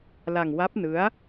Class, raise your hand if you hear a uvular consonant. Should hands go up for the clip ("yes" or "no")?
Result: no